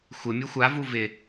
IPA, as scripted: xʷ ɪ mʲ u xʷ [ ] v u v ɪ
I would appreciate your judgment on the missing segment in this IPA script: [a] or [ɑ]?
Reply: a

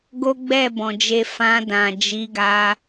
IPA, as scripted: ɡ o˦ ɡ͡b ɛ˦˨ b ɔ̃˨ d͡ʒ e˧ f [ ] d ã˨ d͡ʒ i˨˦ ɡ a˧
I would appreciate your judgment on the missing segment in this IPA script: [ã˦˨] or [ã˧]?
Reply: ã˧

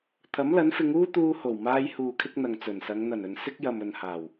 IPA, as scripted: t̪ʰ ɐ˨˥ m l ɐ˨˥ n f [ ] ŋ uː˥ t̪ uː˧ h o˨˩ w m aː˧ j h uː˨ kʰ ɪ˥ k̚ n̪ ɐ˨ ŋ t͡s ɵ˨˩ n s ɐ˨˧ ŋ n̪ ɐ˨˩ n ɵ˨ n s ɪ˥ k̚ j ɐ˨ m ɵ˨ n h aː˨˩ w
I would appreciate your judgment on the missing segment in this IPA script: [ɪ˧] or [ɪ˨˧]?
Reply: ɪ˨˧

